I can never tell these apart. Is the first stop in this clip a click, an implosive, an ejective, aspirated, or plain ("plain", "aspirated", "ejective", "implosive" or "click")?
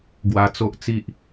plain